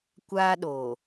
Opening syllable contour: high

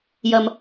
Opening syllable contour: low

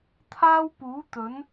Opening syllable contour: high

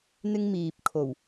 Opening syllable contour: high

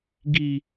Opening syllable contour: high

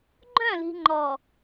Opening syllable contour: falling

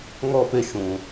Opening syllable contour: falling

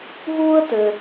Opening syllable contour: high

